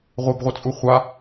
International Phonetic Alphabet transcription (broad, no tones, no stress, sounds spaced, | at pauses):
ʁʷ ɛ b ʁʷ ɯ t͡sʼ u χʷ a